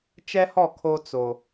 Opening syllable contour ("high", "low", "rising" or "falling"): high